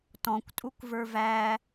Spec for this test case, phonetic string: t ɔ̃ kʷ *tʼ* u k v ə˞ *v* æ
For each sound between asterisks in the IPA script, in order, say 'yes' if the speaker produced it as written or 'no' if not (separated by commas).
yes, yes